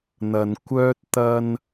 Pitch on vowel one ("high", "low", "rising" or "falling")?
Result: low